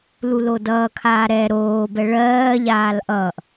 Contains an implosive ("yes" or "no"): no